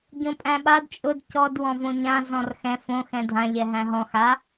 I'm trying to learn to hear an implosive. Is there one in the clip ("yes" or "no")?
yes